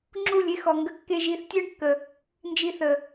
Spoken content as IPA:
ŋ͡ǁu˦˨lʲe˦xɔ˨ŋɡə˧ kːe˧ʒi˨˦θtʲœ˦ɳkːə˨ | nd͡ʒi˧θə˨

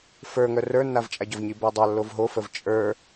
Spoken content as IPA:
fə˞ŋœ rə˞nːavt͡ʃʼaɟɔv ɲibœdˤa lːovɦofəv t͡ʃʼə˞

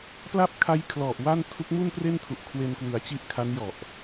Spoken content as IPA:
pla˥˩p̚kʰa˦˥j kʰlɔ˨˩ʔ wa˥˩n tʰu˦˥k̚mu˥˩npre˥˩ntʰu˨˩ʔ kʰwe˧nkwɯ˩˦a̯t͡ɕi˦˥ʔ kʰa˦˥njɔ˨˩ʔ

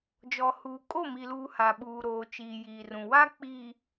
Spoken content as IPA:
d͡ʒɔ˨huː˨ kʼo˦˨mi˨luː˨ ha˨ ɓuː˨ɾoː˨t͡ʃiː˨ jiː˨rũ˨ wa˦ k͡piː˨

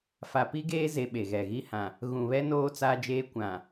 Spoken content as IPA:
fa˨pi˦ɡeː˦ze˨ ɓe˨ɣɛ˨ɣi˦ hã˨ | ɣũ˨βɛ˦noː˦ t͡saː˦d͡ʒeː˦ kʷã˨

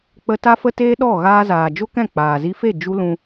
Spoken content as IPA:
k͡pə˧ ta˦fə˦teː˦ɗɔ˦˨ ɣaː˧zaː˨d͡ʒo˦kɛ̃˦˨ k͡paː˨zi˧fe˦˨ d͡ʒu˦lũ˧

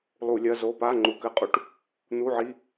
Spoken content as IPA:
lˠu˧˩˧lʲɐ˧˥˧zo˧˥˧ pa˧˥˧ŋ͡ǃu˨˦kɘ˧˩˧qʼu˨˦ʈ | n̪u˧˥˧ʕi˧˥˧

